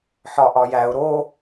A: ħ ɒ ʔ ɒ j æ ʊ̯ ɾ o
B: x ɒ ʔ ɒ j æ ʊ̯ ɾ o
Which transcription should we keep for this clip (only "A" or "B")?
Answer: A